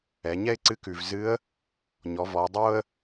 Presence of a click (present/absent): present